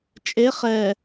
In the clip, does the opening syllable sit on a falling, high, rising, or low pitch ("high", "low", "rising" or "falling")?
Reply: rising